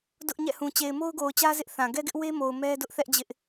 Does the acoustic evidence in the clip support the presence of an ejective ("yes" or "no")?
no